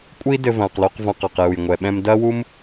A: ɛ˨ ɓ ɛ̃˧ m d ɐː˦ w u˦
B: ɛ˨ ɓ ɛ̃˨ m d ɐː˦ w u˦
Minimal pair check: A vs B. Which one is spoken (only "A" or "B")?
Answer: A